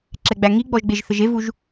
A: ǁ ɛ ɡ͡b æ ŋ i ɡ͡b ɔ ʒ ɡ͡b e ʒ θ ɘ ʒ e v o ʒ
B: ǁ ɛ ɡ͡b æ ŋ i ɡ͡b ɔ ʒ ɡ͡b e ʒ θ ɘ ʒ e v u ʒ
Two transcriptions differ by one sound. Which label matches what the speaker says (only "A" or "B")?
B